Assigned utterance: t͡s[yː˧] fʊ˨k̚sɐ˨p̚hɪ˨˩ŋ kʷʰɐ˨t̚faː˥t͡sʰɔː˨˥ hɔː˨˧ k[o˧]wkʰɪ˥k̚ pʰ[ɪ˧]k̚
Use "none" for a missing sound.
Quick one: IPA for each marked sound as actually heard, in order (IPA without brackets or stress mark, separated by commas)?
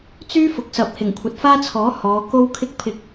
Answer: yː˥, o˥, ɪ˧